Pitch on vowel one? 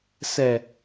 low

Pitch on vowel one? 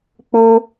high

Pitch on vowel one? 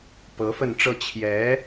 rising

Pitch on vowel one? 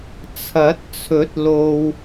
rising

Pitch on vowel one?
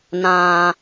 low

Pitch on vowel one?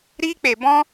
high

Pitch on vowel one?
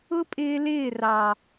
high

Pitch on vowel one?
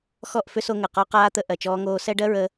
falling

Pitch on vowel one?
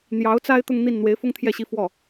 rising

